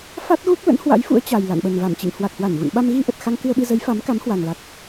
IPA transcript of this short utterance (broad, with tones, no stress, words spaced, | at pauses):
fa˦˥t̚ɣu˦˥k̚ lə̰˧˥nhwa̰˧˥jfṵ˧˥ə̯ t͡ɕa˨˩j la̰˧˨nɓə˨˩nva˧˩mt͡ɕḭ˧˨ŋ hwa˨˩k̚hwa˧˩nɣṵ˧˨nɓa˧m ɣi˧ʔə˨˩t̚ xa˧ŋ kɨ˧ə̯ɓɨ˧ zə˨˦jfa˨˦mka˨˦m hwa˨˩ŋla˨˩k̚